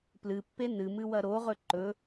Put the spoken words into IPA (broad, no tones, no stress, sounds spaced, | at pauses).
p l ɨ pː e n ɨ m ɨ w ɐ ɾ o ʁ ɵ ǃ ɵ